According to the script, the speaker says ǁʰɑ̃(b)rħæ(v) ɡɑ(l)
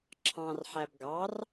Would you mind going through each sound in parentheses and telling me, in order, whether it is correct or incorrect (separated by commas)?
incorrect, incorrect, incorrect